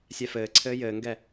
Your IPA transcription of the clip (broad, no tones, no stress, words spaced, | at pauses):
sʲɛfɘːǀʰɘː jɘːŋɡɛ